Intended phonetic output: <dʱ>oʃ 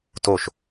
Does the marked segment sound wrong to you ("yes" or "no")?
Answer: yes